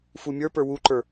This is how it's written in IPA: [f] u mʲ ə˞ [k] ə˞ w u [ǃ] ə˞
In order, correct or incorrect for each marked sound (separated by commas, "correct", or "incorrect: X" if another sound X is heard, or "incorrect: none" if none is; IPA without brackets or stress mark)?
correct, incorrect: p, correct